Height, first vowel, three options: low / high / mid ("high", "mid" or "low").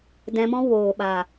mid